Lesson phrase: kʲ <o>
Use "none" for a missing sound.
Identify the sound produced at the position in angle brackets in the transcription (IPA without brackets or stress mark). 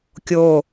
o